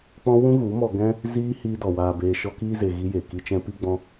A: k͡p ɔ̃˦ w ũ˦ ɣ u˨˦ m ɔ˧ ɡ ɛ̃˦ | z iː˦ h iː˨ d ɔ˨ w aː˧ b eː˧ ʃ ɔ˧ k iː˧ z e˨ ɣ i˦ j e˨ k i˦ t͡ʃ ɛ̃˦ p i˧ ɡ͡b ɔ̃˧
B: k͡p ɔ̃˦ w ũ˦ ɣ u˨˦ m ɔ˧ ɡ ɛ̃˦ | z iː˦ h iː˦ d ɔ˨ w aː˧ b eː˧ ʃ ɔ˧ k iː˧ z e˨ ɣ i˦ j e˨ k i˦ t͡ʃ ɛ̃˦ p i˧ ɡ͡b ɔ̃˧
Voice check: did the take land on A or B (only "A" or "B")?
B